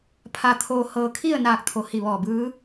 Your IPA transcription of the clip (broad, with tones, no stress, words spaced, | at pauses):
pʰa˧t̪ʰoː˧hɤː˧ kʰi˥˨ə̯naː˧˩k̚t̪ʰo˩˧ hi˧˩ʋɔː˧˩bɯː˧˥